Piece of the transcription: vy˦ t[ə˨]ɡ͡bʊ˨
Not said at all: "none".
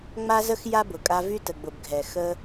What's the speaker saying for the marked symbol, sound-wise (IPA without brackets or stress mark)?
ə˨